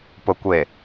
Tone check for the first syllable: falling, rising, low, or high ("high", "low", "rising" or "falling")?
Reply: low